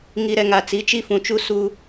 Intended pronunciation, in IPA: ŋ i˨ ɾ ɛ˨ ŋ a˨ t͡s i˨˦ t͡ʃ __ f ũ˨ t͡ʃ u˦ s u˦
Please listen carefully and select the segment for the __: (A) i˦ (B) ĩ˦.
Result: A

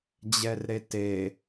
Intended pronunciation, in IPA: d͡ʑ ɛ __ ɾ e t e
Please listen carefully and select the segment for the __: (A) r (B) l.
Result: A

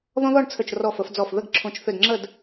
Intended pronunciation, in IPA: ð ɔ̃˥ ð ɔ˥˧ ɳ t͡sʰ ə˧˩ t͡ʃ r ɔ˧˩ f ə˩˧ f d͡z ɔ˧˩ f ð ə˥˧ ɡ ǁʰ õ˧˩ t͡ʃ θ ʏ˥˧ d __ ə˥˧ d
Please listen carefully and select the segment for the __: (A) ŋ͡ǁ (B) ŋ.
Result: A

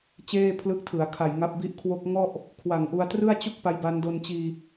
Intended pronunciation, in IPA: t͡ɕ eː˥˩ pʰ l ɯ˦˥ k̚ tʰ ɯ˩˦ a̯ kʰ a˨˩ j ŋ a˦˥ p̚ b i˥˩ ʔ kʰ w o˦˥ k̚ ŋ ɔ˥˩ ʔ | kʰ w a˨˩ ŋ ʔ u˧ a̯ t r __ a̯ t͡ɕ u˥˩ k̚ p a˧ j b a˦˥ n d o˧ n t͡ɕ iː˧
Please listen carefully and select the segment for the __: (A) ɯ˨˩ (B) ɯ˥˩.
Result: B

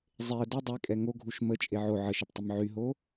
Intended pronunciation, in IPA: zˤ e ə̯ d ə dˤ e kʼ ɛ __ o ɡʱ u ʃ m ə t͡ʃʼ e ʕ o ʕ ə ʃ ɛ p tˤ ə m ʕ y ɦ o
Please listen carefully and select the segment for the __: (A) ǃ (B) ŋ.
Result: B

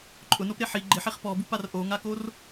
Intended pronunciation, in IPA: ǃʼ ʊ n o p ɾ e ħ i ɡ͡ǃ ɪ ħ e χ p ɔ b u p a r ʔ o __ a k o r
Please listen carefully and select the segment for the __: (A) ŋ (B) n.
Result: A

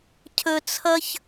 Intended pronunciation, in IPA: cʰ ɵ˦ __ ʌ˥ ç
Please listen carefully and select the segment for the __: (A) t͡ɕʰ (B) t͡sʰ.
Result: B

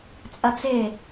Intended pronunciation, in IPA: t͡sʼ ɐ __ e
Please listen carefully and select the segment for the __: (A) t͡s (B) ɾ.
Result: A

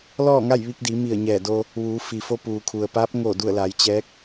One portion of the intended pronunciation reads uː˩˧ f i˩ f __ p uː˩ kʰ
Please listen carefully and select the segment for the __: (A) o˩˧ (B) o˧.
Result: B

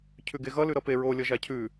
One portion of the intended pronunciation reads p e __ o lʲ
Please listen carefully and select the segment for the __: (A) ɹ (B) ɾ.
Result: A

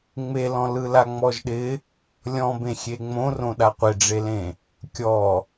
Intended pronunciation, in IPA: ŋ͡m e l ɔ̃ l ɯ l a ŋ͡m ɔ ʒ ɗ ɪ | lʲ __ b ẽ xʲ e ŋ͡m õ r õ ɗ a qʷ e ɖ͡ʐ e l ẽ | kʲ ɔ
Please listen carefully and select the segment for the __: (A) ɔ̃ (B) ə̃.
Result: A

